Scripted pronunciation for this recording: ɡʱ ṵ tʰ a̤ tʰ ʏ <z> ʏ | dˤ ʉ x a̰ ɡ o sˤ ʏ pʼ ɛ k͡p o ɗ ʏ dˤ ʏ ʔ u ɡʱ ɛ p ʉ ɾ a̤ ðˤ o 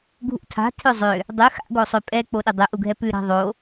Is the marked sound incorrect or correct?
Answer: incorrect